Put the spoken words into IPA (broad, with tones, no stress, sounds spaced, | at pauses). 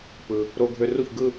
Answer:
p ɯ˩ | ɾ o˧ ɡʱ ø˧ r u˥˩ ç ɡ ɯ˥˧